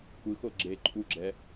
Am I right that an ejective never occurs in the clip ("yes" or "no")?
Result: no